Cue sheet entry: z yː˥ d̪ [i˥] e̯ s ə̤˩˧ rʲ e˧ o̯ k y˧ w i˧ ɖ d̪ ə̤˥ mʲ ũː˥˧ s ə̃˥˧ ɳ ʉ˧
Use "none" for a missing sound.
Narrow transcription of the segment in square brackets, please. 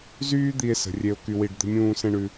i˧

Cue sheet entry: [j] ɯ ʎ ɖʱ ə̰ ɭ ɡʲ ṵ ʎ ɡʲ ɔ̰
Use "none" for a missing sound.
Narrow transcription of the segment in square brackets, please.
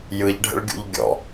j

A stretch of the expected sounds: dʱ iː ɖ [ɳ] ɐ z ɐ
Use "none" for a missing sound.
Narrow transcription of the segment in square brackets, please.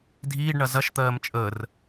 ɳ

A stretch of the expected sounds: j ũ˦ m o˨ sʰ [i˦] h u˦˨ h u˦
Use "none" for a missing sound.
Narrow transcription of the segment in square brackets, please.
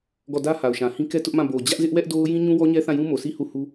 i˦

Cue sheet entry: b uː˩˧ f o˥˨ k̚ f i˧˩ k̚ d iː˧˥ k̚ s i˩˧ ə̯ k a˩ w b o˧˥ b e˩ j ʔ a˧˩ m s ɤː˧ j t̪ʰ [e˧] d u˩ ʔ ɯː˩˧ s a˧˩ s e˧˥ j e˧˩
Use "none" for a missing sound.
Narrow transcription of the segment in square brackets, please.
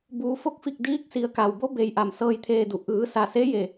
eː˧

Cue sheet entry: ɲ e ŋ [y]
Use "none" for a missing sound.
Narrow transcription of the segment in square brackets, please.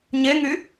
y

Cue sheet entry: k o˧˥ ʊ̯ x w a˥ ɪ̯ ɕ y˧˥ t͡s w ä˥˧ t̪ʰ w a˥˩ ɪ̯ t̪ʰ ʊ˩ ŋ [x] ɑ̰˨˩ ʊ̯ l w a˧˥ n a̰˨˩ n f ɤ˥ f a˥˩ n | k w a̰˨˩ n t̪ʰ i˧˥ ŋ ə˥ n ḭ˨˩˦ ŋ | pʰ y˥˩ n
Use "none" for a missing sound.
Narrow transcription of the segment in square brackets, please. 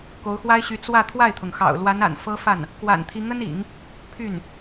x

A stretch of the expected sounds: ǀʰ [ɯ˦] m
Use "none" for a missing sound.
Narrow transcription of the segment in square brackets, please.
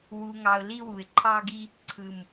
ɯ˨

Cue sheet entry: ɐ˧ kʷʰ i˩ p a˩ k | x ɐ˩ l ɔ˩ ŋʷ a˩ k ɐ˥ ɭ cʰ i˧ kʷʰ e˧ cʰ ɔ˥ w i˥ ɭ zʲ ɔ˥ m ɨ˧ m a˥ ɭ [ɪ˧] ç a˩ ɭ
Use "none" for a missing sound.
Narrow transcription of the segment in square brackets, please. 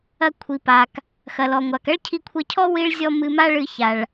ɨ˧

